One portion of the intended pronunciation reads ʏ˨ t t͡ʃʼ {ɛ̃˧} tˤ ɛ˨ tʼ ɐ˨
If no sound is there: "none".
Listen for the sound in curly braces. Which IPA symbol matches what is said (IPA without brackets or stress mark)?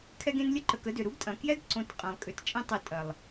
ɛ̃˧